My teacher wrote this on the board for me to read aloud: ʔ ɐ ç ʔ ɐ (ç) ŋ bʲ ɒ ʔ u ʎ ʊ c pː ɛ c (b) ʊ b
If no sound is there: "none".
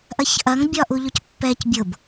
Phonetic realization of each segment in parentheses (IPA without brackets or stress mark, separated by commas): none, bʲ